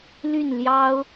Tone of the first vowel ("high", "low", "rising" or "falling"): falling